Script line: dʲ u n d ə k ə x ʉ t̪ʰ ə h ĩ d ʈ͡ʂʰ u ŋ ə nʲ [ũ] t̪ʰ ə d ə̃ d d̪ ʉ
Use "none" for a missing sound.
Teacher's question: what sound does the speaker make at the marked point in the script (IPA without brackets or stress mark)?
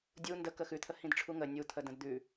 u